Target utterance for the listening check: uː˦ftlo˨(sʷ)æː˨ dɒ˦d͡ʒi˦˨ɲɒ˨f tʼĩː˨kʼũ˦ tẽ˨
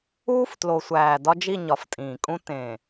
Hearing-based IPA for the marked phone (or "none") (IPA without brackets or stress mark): sʷ